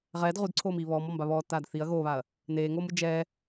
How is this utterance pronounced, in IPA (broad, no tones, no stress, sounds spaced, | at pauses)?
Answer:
ʁ ɛː d ʁ u d ǀʰ oː m iː β ɔː m ɔ m b a β ɔː tː aː d θ i ɐ̯ ɣ oː β a ɐ̯ | n eː ŋ oː m ɯ d͡ʒ ɛ